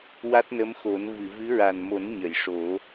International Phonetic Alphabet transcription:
wa˦˥t̚nə˧˥mxo˨˩˦n vɨ˨˩˨vɨ˧˥ɹa˨˩n mo˨˩˦n ɲə˨˩˨jʂo˨˩˦

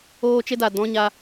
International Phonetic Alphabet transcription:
oː˦t͡ʃe˦da˨ dɔ̃˦ɲa˧

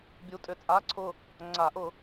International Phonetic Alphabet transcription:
bʲu˨˥tʼʏ˨˩t͡sʼa˧˥˧ǀʰʊ˦˨ | ŋ͡ǀa˨˩˦ʔʊ˨˩˦

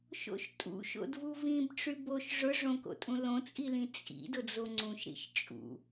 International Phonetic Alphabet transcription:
ʃo̰ʃtʼṵ ʃo̰dvuvĩbʈ͡ʂy boʃ ʐʊ ʐõko̰tʼũ lõt͡sʼilĩ t͡sʼḭ dʊd͡zoŋ͡ǀũʃɾḭʃ t͡ʃʼṵ

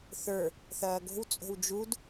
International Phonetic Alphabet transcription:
θə˞ | θɐːɡo̤w t͡sʼo̤wd͡ʒud

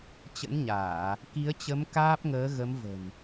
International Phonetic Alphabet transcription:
t͡ɕə̰˧˥nɲaː˧˩˨ | ki˨˦ə̯t͡ɕə˨˦m kaː˦˥p̚ŋəː˨˦ɣə˨˦mvə̤˨˩n

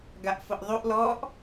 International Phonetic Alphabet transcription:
ɡaʔfʊʔðˤuʔ lɔʔ

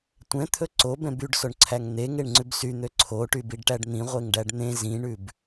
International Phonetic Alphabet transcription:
tʷɛ̃t̪ʰɵ ǀobɛ̃ byɖsoɳǀʰæŋ n̪eŋeɳŋ͡ǀʉb syn̪ø ǀʰoʈybiɖʈæɖ n̪ĩʁʷeŋɖæɖ n̪ẽ zĩɳʉb

